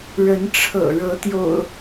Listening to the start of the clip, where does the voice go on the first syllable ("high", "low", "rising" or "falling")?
rising